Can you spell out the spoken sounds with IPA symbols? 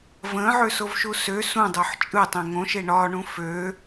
v ə̃ː ʕ ø s o v ʃ u s ø s ũ dˤ ø ħ t͡ʃʼ ɯ tˤ ẽ ŋ õ ʃ e ɳ ɒ ɳ ũ f ø

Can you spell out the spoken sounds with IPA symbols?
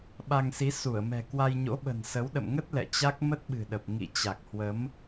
ɓ a˧ ŋ s i˨˦ s u˧˩ ə̯ m ɛ̤˨˩ k w a˧ j ɲ o̰˧˥ ɓ ə̤˨˩ n s ə˨˦ w ɗ ə̰˧˨ m ŋ ə˦˥ t̚ l ɛ̰˧˨ t͡ɕ a˦˥ k̚ m ə˦˥ t̚ ɓ ɨ̤˨˩ ɗ ə˨˩ p̚ ŋ ḭ˧˨ t͡ɕ a˨˩ k̚ h w ə˨˦ m

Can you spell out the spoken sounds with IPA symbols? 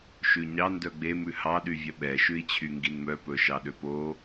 ʃ ʉ ɲ ɑ n d œ ɡ͡b e m ʉ h ɑ ɗ y vʲ œ ɓ ɛ ʃ ʉ i̯ t͡ɕʰ y ŋ ɡ i n m œ p ɵ ʃ ɑ ɗ ø p o

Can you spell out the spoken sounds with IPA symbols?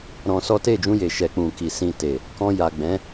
ɾ ɔ̃˧ s ɔ˦ t e˦˨ d͡ʒ ũ˧ j e˨ ʃ ɛ˨ k͡p ũ˨ k i˨ s ĩ˧ t e˨ | k ɔ̃˧ j a˨ ɡ͡b ɛ̃˨˦

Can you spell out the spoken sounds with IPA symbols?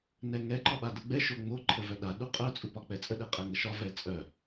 n ɛ ŋ ɛ ǃ ɒ ɓ a d ə ɡ͡b ɛ ʃ o ŋ͡m o ǃʰ ə v œ ɗ a ɗ u qʼ œ t͡sʼ u p ɒ k͡p ɛ t͡sʼ ə ɗ ɛ qʼ ɛ ŋ ə ʃ ɒ v ɛ t͡sʼ œ

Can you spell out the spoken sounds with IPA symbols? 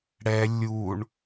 ɽ ɛ lʲ u ɳ

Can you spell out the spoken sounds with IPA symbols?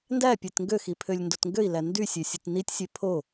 n d æ pʲ e t ŋ ɡ ø x i pʰ ø lʲ n d o t ŋ ɡ ø i̯ l æ n d y sʲ ø sʲ ɯ t n i tʲ sʲ e pʰ o

